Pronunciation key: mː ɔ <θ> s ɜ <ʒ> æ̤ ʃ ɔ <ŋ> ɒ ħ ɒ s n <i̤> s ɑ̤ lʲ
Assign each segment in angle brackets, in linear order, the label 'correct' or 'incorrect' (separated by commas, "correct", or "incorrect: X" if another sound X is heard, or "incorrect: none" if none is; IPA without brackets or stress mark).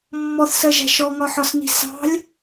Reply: correct, correct, correct, correct